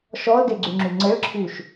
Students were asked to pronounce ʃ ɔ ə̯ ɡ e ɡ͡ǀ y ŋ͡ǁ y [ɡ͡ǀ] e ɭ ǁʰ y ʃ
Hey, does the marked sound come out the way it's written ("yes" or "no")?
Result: no